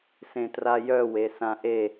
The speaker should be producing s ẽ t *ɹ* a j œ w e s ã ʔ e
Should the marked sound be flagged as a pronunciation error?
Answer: yes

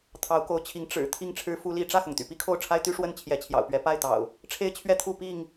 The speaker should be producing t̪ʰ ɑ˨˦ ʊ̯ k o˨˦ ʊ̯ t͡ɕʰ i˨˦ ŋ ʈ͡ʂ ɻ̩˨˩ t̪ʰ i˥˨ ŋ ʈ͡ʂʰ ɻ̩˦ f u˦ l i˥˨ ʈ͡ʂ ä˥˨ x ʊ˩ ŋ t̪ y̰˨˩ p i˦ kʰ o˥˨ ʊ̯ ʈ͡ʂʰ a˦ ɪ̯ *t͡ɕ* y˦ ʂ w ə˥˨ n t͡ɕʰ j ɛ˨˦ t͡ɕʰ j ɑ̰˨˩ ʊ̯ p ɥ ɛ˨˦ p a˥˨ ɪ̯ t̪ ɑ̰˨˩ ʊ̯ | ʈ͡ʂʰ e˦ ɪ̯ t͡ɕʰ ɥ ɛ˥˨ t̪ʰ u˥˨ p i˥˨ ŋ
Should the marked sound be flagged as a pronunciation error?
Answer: yes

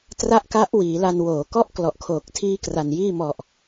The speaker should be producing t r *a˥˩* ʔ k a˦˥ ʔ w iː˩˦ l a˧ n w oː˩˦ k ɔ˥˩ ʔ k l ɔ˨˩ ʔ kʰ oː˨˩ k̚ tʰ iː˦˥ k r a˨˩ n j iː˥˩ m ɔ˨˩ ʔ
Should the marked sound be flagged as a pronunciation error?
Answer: no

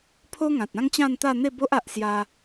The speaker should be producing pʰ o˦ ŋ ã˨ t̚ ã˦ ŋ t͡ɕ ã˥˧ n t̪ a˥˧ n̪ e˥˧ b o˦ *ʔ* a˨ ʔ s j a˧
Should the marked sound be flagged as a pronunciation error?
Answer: no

